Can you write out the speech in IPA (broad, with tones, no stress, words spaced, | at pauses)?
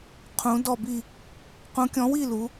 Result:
qʰũ˨˦ dɔ˦˨bi˦˨ | qũ˨˦kʲɔ̃˨˦wi˦˨ lu˨˦